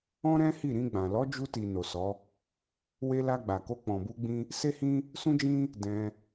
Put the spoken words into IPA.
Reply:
ɔ̃˦ ɾ ɛ̃˦ h i˦˨ ɾ ĩ˧ ɡ͡b ã˨ l ɔ˨˦ d͡ʒ u˧ t i˨ n o˨ s ɔ˨˦ | w e˧ l a˧ ɡ͡b a˨ k o˧ k͡p ɔ̃˨ b u˧ ɡ͡b ĩ˦ | s e˦ h ĩ˦ | s ũ˦ d͡ʒ ĩ˦ | d ɛ̃˧

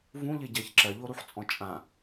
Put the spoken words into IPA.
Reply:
v ũ ʎ ɪ ɟ ɜ ç ǁ ɜ ʎ o ɾ u ħ t͡sʼ ɔ̃ t͡ʃʼ ã

